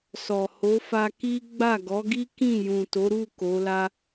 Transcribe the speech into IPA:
s ɔ˨ h o˨˦ f a˧ k i˦ ɡ͡b a˦˨ ɡ ɔ˨˦ ɡ i˦ k ĩ˦˨ j ũ˨ t o˨˦ ɾ u˦˨ k o˨˦ l a˦

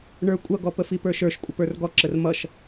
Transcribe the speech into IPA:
ɳ ə˞ kʷʼ ʌ ɡ ɔ p ə f i p ə˞ ʃ ə˞ ʃ kʷʼ ʌ p ə˞ r ɡ ɔ ǁ ə r m ʌ ʃ

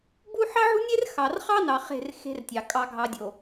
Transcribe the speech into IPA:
b u˦ ħ ɑ˦ ʕ ṳ˦ nʲ e˦ r x ɑ˨ r χ ɑ˦ n ɑ˨ χ e̤˦˨ r x e̤˦ r tʲ ɑ˨ kʼ ɑ˨ ɡʱ ɑ˨ dʲ o˨

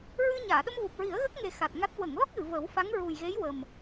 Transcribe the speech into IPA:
ɹ ɨ˧ ɲ aː˨˩˨ ɗ ə˧ m v u˨˩ p̚ ɹ i˨˩˦ ə̯ ɣ ə˦˥ k̚ ŋ e˨˩ x a˨˩ t̚ ŋ a˦˥ t̚ w ə˨˩˨ ŋ l ɔ˦˥ k̚ ɣ ɨ˨˩˨ v ə˨˩˦ w f a˧˥ ŋ ɹ u˨˩ j ɣ e˧˥ j w ə˨˩ m

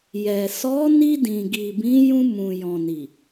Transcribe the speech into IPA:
j ɛ˨ s ɔ˨˦ n i˧ d ĩ˨ ɡ i˨ b ĩ˨˦ j ũ˧ m ũ˨ j ɔ̃˨ n i˨

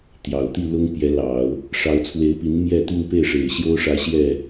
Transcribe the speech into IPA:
t̪ j ɑ˨˩ ʊ̯ t̪ i˥˩ l ʊ˥ ŋ p j ɛ˧˥ l ɑ˨˩˦ ʊ̯ | ʂ ɑ˧˥ ʊ̯ t͡sʰ w e˧˥ ɪ̯ p i˧˥ n m j ɛ˥˧ t̪ i˥˧ ŋ p e˥˩ ɪ̯ ʂ e˨˩ ɪ̯ ɕ j o˥ ʊ̯ ʂ ä˧˥ ɕ j ɛ˥˩

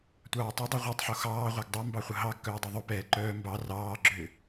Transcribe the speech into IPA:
tʷ ɑː tˤ e dˤ ə ʁʷ ɛ tˤ ħ o x ɑː ʁʷ ɑ ɡ dˤ œ m b ɑ χʷ ə ɦ ɑ ɡ k œː dˤ u ðˤ u p ɛː ǃ œː m b ɑ r ɑː ɡ͡ǁ ʏː

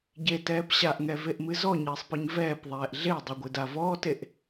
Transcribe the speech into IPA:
ɟ e t ɛː p ɕ a ʔ ŋ ɛ v e ʔ m ɨ z ɔ ɲ ɘː sˤ p ɨ ɲ v ɛː p ðˤ ɛː ʔ ɮ e dˤ ɨ ɡʷ ɨ d a v ɔː t e ʔ

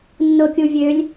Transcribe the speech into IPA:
nː o kʲ u vʲ ø lʲ

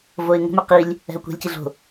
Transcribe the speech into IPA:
v o ɪ̯ ŋ o̤ m y q i lʲ | ɛ̤ ʊ̯ kʷ ɛ̤ lʲ c i ɮ o̤

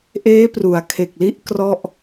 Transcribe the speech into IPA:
ʔ eː˦˥ p r u˩˦ a̯ kʰ e˨˩ k̚ l i˦˥ ʔ k r ɔ˥˩ ʔ

